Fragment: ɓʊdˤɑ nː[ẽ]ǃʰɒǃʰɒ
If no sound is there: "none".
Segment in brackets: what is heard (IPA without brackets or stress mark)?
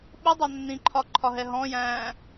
ĩ